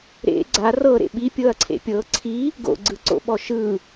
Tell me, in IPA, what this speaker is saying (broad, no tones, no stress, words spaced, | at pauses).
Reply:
ɾḛ ɡ͡ǀa rɤɾḛ ɓipʲɤɐ̯ǀʰḛ pʲɤ ǀʰi | ɡo̰ɡ͡ǀɯǀo̰ɓɔ ʃɯ